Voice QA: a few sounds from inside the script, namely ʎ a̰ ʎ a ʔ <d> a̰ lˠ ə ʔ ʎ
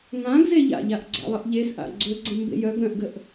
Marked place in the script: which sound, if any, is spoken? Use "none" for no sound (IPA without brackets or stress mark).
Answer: ɡ͡ǀ